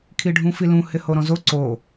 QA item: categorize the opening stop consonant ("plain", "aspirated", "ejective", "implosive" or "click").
aspirated